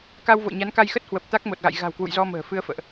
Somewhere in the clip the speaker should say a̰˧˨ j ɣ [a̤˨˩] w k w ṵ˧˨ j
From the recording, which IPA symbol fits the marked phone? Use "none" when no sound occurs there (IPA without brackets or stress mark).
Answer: a̤˨˩